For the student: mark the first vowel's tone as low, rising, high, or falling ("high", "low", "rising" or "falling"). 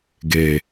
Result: low